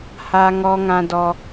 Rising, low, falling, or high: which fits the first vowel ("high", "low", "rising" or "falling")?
high